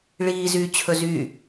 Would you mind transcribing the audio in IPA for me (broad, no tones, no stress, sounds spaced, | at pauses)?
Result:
ɭ iː z yː t͡ɕʰ ɵ z y